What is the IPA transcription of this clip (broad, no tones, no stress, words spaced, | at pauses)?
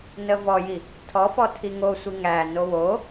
nəvɔji | tʰɔfɔ tʰiŋosʷi ŋæno wo